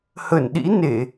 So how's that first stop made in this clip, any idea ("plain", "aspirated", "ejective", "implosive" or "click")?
implosive